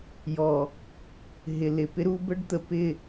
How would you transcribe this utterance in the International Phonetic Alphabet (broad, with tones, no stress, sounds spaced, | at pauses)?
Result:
j ɔ˨ | ɦ ɪ˨ l ɪ˨ p ɪ˦ ɾ u˦ b ə˦ ɖ t̪ ə˨ p ɪ˦˨